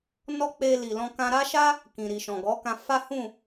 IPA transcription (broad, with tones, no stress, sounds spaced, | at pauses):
n ɔ˦ k͡p e˧ l i˨ l ɔ̃˧ k ã˧ ɾ a˦ ʃ a˦ | k ĩ˨ ɾ i˨ ʃ ɔ̃˨ ɡ ɔ˨˦ k ã˧ f a˦ h ũ˦˨